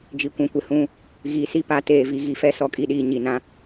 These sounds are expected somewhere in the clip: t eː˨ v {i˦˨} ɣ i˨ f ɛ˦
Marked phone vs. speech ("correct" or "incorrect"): incorrect